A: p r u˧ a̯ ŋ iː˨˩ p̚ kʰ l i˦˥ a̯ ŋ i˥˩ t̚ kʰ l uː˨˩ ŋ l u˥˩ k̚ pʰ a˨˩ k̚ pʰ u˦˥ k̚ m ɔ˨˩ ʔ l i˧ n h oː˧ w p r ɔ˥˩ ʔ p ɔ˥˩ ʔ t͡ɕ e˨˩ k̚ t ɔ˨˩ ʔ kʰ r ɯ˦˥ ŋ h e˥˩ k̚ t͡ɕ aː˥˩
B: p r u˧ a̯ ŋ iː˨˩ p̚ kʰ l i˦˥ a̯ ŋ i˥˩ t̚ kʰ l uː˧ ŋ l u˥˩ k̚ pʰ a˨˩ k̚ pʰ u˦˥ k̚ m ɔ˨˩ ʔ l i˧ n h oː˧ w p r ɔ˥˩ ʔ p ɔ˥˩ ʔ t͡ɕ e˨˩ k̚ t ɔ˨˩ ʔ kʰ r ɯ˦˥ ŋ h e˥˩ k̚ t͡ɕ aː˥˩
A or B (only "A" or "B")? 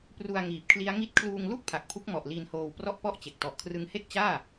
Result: B